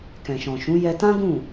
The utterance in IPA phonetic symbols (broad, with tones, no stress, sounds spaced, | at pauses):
k ɛ̃˨ ʃ ɔ̃˨ ʃ ũ˨˦ j ɛ˧ t ã˦ ɡ ũ˦˨